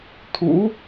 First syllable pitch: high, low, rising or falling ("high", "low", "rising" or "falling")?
rising